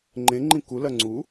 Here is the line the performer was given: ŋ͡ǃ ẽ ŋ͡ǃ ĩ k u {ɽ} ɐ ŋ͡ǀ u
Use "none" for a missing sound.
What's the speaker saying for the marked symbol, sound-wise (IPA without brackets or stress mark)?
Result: l